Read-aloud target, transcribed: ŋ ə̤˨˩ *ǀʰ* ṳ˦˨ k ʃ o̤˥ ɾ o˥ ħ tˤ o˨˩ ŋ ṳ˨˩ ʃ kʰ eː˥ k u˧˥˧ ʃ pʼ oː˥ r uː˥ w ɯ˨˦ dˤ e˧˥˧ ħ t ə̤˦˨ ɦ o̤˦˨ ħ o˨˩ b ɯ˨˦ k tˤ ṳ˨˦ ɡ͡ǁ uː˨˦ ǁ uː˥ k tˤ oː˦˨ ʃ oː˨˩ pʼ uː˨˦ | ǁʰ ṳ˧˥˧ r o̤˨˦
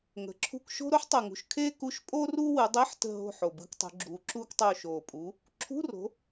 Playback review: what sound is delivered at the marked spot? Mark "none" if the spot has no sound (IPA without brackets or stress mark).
ǁʰ